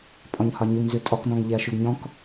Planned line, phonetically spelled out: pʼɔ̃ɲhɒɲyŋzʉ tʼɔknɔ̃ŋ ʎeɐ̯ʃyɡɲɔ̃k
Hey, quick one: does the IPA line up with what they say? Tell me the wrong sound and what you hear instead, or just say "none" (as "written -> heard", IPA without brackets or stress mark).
none